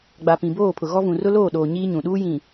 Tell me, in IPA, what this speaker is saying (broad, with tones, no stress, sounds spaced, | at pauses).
ɡ͡b a˨ p ĩ˨ b oː˦˨ pʰ ʊ˨ ɣ ɔ˦ v ũ˨ r ʊ˦ l oː˦˨ ɗ oː˨ ɲ iː˦ ɲ ũ˨ ɗ uː˦ j ĩ˨